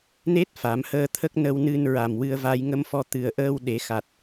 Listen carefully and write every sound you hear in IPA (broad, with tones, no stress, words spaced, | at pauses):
ne˦˥t̚ fa˨˩˦mhəː˧t̪ʰə˦˥k̚ nə˧wnɨ˧nɹa˨˩m wɨ˧ə̯va˧j ŋə˧mfɔ˧ t̪ɨ˨˩ə̯ʔəː˧w ɗe˨˩˦xa˨˩t̚